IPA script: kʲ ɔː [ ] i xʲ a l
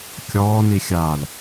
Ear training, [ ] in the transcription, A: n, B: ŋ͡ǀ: A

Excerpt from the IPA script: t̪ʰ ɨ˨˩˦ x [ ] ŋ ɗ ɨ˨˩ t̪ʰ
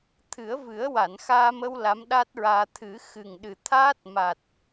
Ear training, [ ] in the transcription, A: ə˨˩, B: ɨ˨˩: B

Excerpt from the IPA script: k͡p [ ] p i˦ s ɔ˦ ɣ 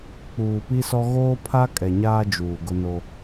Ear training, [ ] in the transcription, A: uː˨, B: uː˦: A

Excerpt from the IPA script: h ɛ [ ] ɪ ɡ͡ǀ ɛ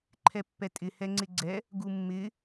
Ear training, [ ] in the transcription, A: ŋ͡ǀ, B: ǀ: A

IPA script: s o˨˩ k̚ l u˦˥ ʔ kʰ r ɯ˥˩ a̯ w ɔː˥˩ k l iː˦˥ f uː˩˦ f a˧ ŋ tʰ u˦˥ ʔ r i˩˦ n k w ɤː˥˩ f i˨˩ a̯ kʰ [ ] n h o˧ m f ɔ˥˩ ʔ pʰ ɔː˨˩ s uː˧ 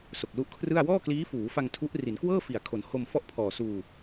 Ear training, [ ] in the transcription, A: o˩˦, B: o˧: A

